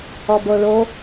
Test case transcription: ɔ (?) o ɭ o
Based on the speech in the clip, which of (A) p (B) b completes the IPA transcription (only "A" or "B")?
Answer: B